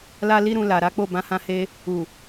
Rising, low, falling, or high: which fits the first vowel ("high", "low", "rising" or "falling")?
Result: high